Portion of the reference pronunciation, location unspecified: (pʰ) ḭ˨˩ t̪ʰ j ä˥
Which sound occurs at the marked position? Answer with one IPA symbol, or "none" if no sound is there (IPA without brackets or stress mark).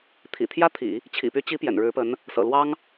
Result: t̪ʰ